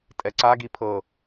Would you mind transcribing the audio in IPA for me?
tʼɛǀaɡi pʰɤ

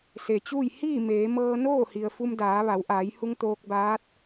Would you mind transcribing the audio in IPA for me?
se˩t͡ɕuː˥˨j hiː˥˨ meː˩˧ mɤː˧noː˥˨ hi˩ə̯fu˧mdaː˩˧ ʋa˩˧wʔaː˩˧jhu˧ŋ t̪oː˧k̚baː˧˥t̚

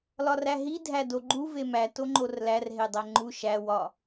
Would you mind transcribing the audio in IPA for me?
lɒræɦi dʱædoɡ͡ǃu vemæ toŋ͡ǃorlær ɦedˤæŋ͡ǃu ʃæ wɒ

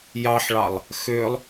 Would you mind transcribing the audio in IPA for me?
jɑħɭɑlˠ | xølˠ

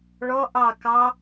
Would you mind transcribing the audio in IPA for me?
ɭɔ ʔɑ kɑ

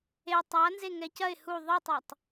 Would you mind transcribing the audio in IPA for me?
e tˤanze ŋɛcɐɪ̯ hu ðˤɨtˤɛtˤ

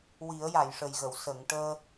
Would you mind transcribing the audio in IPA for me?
wi˨˩˦ə̯ja˨˩˨jʂə˨˩jɣə˨˩˨w sə˨˩˨ŋʈəː˧

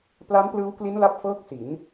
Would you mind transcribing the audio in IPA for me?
pla˦˥nplɯː˦˥wkli˦˥n la˥˩p̚fɤː˥˩k̚si˩˦n

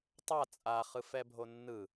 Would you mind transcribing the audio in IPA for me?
tˤa t͡sʼaχɯfɛbʱo nːɯ

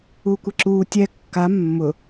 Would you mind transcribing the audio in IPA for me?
uːkʷeǁuː tʲɛ kːa mːʊ

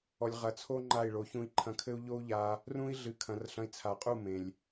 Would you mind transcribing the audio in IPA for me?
ɔ˨lʲʁɐ˨t͡sʰo˦ ŋ͡ǃa˦˨i̯ɭo˨˦ çũ˧i̯ ǃʰɐ̃˧kʰɘ˦u̯ ʎo˦u̯ʎa˧ | rũ˦i̯ ɮɨ˨kʰɐ̃˨r ɬɐ̃˨˦i̯t͡sʰa˨qʼu˦˨ mẽ˨lʲ

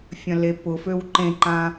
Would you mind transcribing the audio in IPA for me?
fʲɐ̃lepʊføw ǃẽǃã

